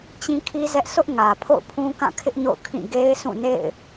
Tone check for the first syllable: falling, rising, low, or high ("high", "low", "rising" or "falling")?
high